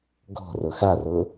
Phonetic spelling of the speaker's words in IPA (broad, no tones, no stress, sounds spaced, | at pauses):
ɡ ɔ̤ r ɤ x a r ɤ